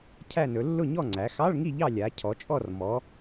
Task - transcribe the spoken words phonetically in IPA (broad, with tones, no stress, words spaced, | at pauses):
cʰæ˦˨nɵ˩˧ lːʊ˦˨ɲɔ˦˨ŋ͡ǀæ˩˧ xɑ˧˥˧ɭŋi˦˨ʎɑ˦˨ lʲa˩˧ cʰɔ˩˧t͡ʃʼɔ˦˨r mɔ˩˧